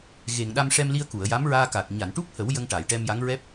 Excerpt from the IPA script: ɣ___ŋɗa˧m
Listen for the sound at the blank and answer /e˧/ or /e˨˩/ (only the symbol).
e˨˩